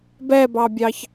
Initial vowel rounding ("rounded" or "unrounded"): unrounded